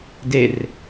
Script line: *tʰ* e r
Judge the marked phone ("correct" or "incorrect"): incorrect